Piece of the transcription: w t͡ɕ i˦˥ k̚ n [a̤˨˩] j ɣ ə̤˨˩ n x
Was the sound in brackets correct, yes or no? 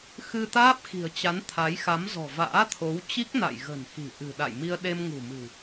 no